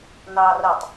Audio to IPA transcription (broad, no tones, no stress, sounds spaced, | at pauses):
n ɑː r ɐ tˤ